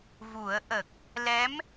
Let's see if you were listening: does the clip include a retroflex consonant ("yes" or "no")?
no